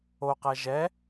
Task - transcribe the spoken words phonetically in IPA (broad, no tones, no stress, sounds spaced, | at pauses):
o q ɛ ʒ ɛ